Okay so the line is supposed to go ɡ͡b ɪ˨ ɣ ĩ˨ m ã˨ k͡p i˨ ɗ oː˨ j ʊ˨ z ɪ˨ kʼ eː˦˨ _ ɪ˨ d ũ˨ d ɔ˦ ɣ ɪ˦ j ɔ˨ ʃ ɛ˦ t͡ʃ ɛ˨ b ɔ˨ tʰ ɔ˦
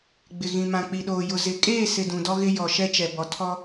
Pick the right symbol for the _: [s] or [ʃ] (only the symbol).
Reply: s